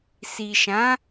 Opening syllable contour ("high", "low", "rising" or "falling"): low